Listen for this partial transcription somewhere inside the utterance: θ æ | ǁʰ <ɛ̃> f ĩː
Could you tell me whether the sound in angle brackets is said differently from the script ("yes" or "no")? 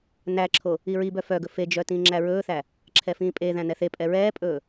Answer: yes